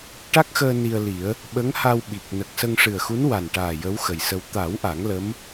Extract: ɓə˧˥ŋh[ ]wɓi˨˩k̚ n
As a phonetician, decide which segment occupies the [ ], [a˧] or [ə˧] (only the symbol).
a˧